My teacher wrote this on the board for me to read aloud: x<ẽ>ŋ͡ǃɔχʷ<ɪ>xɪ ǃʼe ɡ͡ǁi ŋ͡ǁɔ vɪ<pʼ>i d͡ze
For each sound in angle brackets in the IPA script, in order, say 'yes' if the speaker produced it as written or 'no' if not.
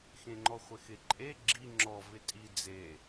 yes, yes, no

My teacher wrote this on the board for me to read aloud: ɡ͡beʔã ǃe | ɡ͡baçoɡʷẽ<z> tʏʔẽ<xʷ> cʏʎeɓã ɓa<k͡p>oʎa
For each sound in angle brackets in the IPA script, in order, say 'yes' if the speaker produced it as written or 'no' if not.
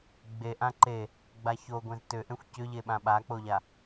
yes, yes, yes

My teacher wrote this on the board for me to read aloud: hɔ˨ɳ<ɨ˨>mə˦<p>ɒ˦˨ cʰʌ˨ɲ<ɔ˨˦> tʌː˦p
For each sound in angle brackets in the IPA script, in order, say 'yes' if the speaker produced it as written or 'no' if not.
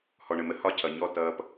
no, no, no

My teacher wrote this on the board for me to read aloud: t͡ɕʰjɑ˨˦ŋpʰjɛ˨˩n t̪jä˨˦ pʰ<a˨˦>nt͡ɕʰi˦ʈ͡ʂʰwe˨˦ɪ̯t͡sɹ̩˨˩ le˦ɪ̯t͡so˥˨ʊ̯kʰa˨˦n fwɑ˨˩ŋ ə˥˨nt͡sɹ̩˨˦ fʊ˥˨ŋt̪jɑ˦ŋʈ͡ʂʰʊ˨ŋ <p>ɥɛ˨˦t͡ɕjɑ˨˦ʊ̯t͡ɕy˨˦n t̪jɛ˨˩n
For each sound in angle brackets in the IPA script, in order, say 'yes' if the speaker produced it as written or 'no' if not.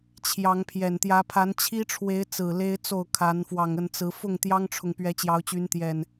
yes, yes

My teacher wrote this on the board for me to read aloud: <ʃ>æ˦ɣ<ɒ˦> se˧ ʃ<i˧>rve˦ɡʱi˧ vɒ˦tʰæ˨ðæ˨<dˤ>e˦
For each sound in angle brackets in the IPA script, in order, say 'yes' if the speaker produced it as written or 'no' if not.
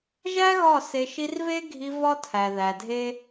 no, no, yes, no

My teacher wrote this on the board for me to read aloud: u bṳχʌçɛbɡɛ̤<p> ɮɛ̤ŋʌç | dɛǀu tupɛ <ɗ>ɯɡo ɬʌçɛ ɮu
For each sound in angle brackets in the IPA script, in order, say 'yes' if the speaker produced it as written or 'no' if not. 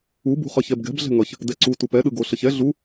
no, yes

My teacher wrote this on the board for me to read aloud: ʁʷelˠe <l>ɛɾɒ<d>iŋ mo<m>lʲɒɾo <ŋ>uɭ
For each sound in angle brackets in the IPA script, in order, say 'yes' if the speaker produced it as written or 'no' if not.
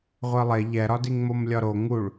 no, yes, yes, yes

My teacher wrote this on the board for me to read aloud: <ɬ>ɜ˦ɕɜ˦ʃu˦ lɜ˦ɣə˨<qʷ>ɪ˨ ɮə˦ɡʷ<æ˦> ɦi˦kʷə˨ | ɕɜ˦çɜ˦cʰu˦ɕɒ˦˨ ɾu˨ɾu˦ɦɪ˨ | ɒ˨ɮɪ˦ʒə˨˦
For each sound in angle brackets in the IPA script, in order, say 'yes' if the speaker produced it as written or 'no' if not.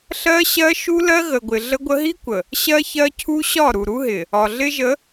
yes, no, no

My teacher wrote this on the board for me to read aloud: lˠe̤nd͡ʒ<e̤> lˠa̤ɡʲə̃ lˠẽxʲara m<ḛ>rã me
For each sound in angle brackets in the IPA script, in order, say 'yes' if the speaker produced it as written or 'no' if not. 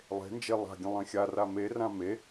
no, no

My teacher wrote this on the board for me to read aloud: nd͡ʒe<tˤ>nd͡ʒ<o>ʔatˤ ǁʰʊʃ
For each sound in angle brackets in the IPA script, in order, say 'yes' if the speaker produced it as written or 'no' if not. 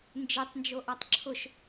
yes, yes

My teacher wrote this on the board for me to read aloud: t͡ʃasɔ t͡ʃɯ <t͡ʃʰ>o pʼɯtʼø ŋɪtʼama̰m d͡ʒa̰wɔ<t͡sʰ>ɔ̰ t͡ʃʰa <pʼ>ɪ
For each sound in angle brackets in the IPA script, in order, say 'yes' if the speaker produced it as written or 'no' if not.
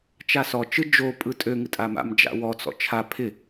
no, no, no

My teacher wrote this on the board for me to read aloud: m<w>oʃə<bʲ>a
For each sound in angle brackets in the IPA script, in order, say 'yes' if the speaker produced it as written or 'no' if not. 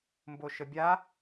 no, yes

